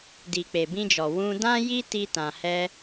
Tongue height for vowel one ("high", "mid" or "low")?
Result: high